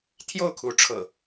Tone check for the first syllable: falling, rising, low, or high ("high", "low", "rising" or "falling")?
falling